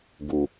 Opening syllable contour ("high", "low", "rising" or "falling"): low